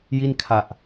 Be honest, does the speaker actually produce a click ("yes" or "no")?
no